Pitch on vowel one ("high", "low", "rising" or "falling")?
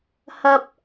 high